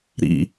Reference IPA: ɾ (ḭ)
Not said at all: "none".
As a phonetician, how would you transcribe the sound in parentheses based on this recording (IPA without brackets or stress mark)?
ḭ